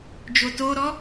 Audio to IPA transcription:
d͡ʒ o t o ɾ ɔ

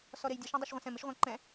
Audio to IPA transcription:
s ɔ ɾ e j dʲ ʌ ʃ ã dˤ ʌ ʃ ʁʷ ɛ̃ s ɛ̃ m ɪ ʃ ʁʷ ã ǃ ɛ̃

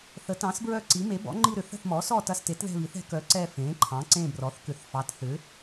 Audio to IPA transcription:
θ ə˩˥ t ɑ̃ː˩˥ s b ɹ œ˦˨ ǀ i˩˥ m e˩˥ b ɔ̰˩˥ ŋ͡ǃ i˦˨ ɾ ʏ˩˥ θ ə̤˦˨ θ m ɔː˩˥ s ɔ˦˨ t ɐ˦˨ s t e˩˥ t ð ɛ̤˦˨ β i˩˥ θ ɛ̤˩˥ k œ˩˥ ǀ ɛ˦˨ f ẽː˩˥ ǃʰ ɑ̃˩˥ ǀ ẽː˦˨ b r ɔ˩˥ θ k ʏ˩˥ θ f ɑ˩˥ t θ ʏ˩˥

